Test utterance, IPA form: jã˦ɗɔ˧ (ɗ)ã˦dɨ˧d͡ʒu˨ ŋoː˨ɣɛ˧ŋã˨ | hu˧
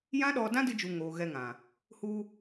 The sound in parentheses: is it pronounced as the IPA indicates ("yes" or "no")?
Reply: no